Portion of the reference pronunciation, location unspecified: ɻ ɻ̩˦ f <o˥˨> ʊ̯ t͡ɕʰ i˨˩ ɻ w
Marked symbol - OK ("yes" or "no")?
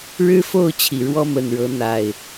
yes